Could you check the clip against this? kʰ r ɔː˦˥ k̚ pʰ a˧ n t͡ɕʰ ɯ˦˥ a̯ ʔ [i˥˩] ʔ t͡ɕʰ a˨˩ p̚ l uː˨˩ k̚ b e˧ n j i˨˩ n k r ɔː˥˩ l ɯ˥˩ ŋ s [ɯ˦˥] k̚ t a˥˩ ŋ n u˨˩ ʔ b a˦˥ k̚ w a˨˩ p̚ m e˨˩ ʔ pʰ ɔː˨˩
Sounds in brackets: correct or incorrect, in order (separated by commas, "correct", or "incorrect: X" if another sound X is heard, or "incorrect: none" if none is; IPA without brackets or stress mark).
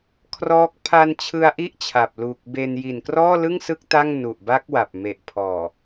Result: correct, correct